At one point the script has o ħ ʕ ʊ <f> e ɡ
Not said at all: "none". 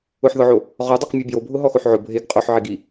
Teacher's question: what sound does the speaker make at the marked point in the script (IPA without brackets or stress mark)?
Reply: bʱ